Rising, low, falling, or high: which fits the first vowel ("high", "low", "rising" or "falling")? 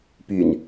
low